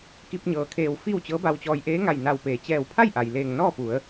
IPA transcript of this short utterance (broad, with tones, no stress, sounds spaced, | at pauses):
k i˧ p̚ ɲ ɤː˩ kʰ eː˧˩ w f i˥˨ w t͡ɕ ɤː˧˥ b a˧ w t͡ɕ ɔː˧ j ʔ eː˧˥ ŋ a˧˩ j n a˧˩ w p eː˩˧ t͡ɕ ɛː˧˩ w pʰ a˥˨ j ʔ a˩ j l eː˧˩ ŋ n ɔː˥˨ p u˩˧ ə̯